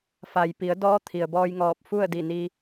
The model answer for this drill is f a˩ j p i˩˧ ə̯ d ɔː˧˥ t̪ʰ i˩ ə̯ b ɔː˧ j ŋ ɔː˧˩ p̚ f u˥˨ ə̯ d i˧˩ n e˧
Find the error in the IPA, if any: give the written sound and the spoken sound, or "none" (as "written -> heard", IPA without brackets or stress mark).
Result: e˧ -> i˧